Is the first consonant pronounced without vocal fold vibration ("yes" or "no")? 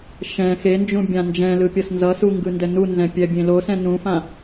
yes